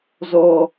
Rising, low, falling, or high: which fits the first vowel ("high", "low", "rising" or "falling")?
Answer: low